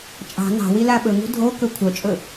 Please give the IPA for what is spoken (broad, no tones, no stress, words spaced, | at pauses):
t͡ʃʼɑ̤ nɑ̤ wilaɓɵŋṳ dʱo kɵkʷʰœt͡ʃʼɵ